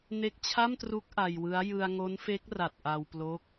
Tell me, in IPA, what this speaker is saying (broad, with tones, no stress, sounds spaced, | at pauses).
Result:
n e˦˥ k̚ t͡ɕʰ a˥˩ m t r u˦˥ k̚ ʔ a˧ j w ɯ˦˥ a̯ j ɯ˧ a̯ ŋ o˦˥ n f e˦˥ k̚ r a˨˩ t̚ ʔ a˧ w p l o˦˥ k̚